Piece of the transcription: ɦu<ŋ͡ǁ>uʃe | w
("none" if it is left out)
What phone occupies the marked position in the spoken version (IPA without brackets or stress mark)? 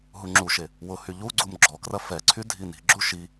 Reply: ŋ͡ǁ